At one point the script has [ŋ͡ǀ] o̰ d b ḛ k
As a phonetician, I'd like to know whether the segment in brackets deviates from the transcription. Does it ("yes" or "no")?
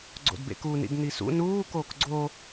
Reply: yes